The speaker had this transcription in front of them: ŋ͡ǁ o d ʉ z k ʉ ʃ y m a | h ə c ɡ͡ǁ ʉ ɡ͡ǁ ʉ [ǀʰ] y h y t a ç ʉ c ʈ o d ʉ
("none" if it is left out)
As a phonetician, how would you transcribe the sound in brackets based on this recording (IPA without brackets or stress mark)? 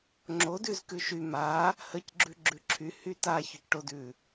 ǁʰ